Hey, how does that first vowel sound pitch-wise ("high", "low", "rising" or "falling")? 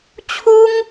high